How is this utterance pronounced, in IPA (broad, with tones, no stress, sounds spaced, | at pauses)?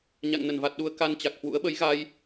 ɲ a̰˧˨ ŋ n ə˧˩ n v a˨˩ t̚ ɗ u˨˦ ə̯ k a˧ n t͡ɕ a˨˩ k̚ h w ṵ˧˥ ə̯ ɓ ə˨˦ j ɣ a˧ j